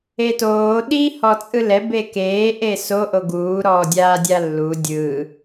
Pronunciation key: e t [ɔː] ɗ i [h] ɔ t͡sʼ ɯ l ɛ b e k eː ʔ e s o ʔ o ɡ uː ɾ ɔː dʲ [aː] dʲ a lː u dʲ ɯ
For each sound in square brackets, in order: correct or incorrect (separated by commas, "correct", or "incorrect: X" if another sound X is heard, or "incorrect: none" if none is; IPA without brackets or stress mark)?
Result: incorrect: oː, correct, correct